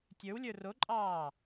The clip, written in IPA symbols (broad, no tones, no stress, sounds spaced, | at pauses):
tʲ ə˞ w lʲ ə˞ r o ǃʼ ɑː